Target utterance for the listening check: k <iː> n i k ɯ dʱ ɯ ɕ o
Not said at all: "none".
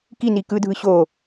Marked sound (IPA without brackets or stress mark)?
i